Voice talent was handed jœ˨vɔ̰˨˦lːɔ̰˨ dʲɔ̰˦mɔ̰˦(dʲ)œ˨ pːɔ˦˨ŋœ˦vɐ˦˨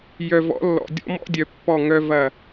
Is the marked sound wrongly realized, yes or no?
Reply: no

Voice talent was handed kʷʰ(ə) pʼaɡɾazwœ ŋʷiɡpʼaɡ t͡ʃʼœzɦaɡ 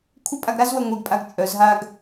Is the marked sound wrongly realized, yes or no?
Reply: no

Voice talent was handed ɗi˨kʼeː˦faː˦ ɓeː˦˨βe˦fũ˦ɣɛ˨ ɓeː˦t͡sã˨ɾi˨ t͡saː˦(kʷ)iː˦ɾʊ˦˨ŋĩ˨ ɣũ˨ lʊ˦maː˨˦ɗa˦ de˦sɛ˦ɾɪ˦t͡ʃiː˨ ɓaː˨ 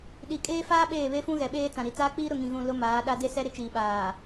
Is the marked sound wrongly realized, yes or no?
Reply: yes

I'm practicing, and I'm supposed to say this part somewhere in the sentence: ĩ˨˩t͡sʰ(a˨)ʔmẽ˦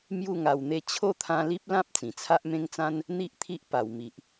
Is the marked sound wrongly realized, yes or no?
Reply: yes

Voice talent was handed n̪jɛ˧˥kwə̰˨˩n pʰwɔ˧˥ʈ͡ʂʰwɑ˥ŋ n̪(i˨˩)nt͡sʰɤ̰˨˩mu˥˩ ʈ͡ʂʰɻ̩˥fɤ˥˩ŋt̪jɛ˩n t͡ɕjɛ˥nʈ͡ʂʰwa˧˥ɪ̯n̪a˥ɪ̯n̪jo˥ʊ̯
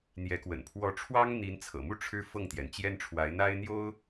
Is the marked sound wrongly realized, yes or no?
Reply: yes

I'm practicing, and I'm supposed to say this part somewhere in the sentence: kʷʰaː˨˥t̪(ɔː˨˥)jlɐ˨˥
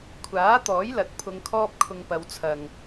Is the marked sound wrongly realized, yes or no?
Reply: no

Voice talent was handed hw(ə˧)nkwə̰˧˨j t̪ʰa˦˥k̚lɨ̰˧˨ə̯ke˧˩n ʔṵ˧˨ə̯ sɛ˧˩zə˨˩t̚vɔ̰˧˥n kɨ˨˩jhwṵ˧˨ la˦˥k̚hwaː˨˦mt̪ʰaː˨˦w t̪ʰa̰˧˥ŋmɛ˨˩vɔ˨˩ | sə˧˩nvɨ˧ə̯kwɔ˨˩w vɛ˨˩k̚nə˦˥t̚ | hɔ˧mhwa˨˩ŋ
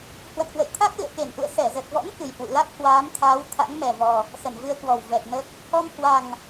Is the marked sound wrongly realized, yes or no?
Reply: yes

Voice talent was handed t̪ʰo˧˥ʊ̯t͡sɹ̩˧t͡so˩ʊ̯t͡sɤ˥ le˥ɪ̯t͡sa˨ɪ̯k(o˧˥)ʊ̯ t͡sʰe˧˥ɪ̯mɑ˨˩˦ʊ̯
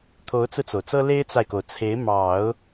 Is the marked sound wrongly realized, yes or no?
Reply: yes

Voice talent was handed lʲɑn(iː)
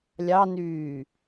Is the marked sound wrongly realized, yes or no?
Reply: yes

